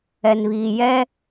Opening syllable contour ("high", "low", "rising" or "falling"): low